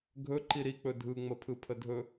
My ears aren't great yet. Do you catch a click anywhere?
yes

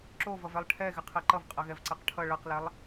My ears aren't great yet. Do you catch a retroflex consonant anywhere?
yes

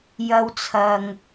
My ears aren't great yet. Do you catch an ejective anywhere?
no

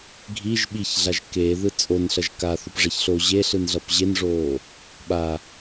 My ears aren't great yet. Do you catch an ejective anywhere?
yes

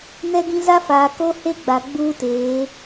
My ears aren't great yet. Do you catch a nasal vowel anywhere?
yes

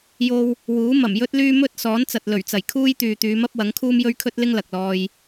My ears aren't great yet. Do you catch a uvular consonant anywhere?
no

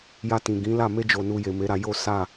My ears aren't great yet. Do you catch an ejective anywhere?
no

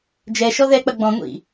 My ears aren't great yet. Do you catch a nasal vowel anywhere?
yes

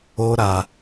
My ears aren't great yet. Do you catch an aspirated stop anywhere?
no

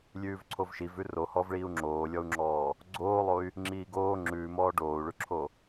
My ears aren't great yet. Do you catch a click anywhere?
yes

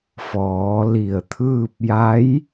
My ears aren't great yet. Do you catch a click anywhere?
no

